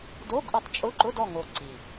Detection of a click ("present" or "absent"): present